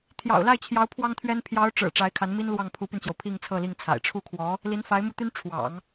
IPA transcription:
t̪ʰ j ɑ̰˨˩ ʊ̯ l a˥˩ ɪ̯ t͡ɕʰ j ɑ˧˥ ʊ̯ pʰ w ɑ˥ ŋ t̪ʰ ɥ ɛ˥ n pʰ j ɑ˧˥ ʊ̯ ʈ͡ʂ ɻ̩˨˩ ʈ͡ʂ a˧˥ ɪ̯ kʰ a˧˥ n m i˥ n l w ɑ˥˩ ŋ pʰ u˧˥ p y˧ n t͡ɕ j o˩ ʊ̯ pʰ i˥˧ ŋ t͡sʰ ɤ˥˧ l i˥˩ ŋ t͡sʰ a̰˨˩ ɪ̯ ʈ͡ʂʰ u˥˩ kʰ w ɔ˧˥ | l i˧˥ n f a˧˥ ɪ̯ m u˥˩ t̪ y˥ n ʈ͡ʂʰ w ɑ̰˨˩˦ ŋ

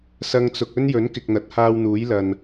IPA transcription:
s ɐ˧ ŋ t͡s ʊ˨ k̚ ɵ˥ n j ɵ˨˥ n k ɪ˨ k̚ n̪ ɐ˨˥ t̚ h aː˧ w n̪ uː˨˥ j l ɐ˨ n

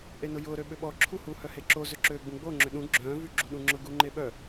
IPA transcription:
ʔ e n ʊ j ʊː ɾ ø ɓ ʏ ɓ ɔ ǁʰ u h u h œ h e ǁ o z ʏ ǁ øː ɡ͡b ũ ɡ͡b o ŋ͡ǁ ʏ ɗ ũ ɡ͡ǁ œ̃ː v y ɡ͡ǁ u ɗ ũ ŋ͡ǁ ʊ ɡ u ŋ͡ǃ e ɓ œ

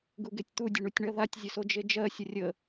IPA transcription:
ɡ u ɡ e tʲ t̪ u dʲ ə ɳ u tʲ ɳ ɜ ð a tʲ zʲ ə s o d͡ʒ e d͡ʒ ɜ sʲ ə rʲ ə

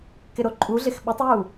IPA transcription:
k ɪ ɾ o ǃʼ u ɮ ɪ x ɓ ɪ tˤ j u

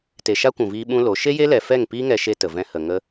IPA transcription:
t e˨ ʃ a˦ kʷ ũ˨ v iː˧ ɓ ũ˦ l o˨˦ ʃ e˦ j e˦ l ɛ˨ f ɛ˦˨ ŋ p iː˦ ŋ ɛ˧ ʃ e˧ t ə˨ v ɛ̃˧ h ə˨ ŋ ə˦

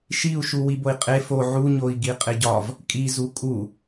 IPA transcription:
ʃ i u̯ ʃ u w i b o i̯ qʼ e f o ʕ u ɲ o i̯ ɡ i qʼ e ɟ ɒ v | kʼ i z u kʼ u

